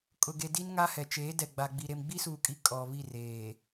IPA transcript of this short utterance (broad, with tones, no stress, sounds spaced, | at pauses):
kʼ ʊ˨ ɡ e˨ d i˦ n ŋ a˦ h ɛ˨ t͡ʃ eː˨˦ d ɛ˨ ɡ͡b a˨ ɡ͡b i˨ ɾ e˨ m ɡ͡b i˦ s uː˨ kʼ i˨ kʼ ɔ˨ β i˦˨ r eː˨